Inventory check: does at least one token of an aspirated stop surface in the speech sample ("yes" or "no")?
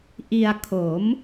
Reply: yes